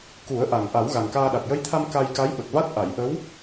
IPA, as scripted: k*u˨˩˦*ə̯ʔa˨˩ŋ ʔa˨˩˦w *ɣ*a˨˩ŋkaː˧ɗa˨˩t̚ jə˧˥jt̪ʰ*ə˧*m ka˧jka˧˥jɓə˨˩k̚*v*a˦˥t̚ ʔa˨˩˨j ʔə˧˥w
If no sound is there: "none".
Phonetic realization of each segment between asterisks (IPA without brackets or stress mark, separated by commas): u˨˩˦, ɣ, a˧, v